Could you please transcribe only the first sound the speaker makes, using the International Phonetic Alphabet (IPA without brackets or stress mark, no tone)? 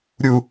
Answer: ɾʲ